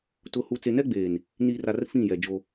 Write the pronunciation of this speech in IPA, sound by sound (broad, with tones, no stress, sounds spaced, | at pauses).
t ʊ˨ h u˨ t͡s e˨ n ɛ˦ ɡ͡b eː˨ n | n iː˨ r a˨ r f ĩ˦˨ j ɛ˨ d͡ʒ o˦